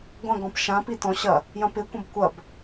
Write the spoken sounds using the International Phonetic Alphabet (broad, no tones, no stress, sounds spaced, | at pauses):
ɡʷ ɐ̃ ɡ ɔ̃ p ʃ ã p i t ɔ̃ ɕ ɐ | j ɐ̃ p ɪ kʷ ɐ̃ b kʷ ɐ b